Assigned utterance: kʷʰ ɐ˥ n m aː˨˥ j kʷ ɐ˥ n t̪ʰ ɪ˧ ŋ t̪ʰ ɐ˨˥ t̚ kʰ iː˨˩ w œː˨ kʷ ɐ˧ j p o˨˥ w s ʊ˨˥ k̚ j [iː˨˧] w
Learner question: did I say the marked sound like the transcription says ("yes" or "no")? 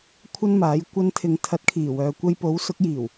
no